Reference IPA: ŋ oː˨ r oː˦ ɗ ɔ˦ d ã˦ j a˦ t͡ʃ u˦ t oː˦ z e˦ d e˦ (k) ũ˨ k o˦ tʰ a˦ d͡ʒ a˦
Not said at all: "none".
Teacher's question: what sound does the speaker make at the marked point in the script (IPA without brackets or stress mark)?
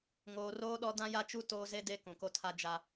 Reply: k